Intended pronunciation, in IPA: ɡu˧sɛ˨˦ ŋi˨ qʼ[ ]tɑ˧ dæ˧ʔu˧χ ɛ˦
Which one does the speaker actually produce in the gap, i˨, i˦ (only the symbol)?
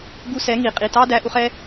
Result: i˨